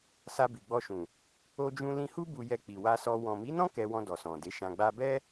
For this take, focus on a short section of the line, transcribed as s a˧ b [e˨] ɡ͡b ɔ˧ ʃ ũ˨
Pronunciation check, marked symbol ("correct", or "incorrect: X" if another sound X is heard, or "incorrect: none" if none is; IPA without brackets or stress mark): incorrect: i˨